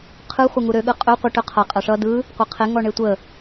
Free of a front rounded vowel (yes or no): no